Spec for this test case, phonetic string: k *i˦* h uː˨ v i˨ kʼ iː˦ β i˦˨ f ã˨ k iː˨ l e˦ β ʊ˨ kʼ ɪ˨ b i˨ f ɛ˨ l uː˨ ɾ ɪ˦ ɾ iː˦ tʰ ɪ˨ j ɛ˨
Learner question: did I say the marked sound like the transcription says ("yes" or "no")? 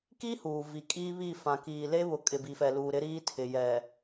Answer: yes